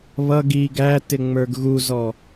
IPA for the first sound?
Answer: β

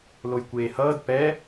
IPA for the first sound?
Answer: l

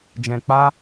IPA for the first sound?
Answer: d͡ʒ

